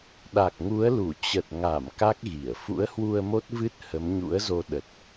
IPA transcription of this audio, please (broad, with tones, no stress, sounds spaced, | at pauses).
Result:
ɗ a˨˩ k̚ ŋ u˨˦ ə̯ l u˧˩ t͡ɕ ə˨˩ t̚ ŋ a˧˩ m k a˦˥ k̚ ɣ i˧˩ ə̯ f ṵ˧˥ ə̯ h w u˧ ə̯ m o˦˥ t̚ v ɨ˦˥ t̚ h ə˨˦ m ɲ ṵ˧˥ ə̯ z o˧ ɗ ə˨˩ t̚